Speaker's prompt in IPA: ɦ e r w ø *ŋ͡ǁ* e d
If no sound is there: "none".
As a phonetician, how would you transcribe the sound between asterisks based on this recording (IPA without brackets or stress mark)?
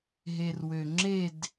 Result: ŋ͡ǁ